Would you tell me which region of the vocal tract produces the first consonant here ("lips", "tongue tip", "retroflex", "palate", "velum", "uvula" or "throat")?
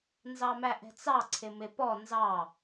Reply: tongue tip